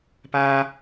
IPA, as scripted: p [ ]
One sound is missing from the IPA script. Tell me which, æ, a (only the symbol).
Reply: a